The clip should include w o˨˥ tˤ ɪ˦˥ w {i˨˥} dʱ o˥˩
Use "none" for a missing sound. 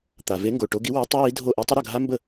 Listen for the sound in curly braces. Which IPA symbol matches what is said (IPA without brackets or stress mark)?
i˨˥